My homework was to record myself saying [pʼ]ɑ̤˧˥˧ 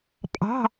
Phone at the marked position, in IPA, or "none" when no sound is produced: pʼ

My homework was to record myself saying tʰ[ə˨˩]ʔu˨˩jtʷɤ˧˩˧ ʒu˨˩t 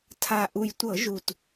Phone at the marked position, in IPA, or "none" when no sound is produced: a˨˩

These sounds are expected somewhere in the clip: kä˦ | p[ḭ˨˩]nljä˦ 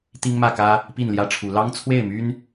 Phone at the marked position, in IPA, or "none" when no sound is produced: i˥˨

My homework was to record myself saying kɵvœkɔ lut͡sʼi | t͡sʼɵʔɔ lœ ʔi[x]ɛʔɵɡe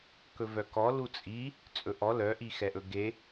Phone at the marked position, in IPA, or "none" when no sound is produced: x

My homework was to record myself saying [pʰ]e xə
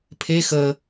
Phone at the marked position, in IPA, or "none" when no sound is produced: pʰ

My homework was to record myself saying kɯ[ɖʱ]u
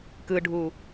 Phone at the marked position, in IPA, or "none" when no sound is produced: ɖʱ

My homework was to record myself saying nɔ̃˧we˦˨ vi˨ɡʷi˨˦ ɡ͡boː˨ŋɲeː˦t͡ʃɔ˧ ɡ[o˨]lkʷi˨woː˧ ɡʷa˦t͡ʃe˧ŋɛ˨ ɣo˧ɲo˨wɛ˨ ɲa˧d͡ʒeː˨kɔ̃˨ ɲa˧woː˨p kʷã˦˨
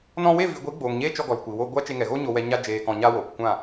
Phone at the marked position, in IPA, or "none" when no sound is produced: ɔ˨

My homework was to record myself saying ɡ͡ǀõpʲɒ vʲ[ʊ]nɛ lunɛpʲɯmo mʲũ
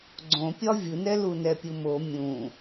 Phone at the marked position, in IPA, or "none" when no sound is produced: ɯ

